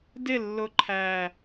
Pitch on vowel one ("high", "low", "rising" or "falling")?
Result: falling